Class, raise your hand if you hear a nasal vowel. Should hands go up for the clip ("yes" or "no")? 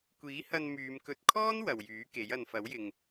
no